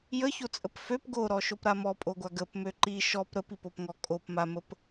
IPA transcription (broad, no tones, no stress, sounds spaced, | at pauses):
j ə ç o t͡sʼ ə p f ø p ɡ o ɾ ɔ ʃ o p ɾ a m ɔ pʼ o ɡʷ a ɡ ə p m ø ǃ i ʃ ɔ p ɾ ə p i p o p ŋ ɔ kʼ o p m a m ə p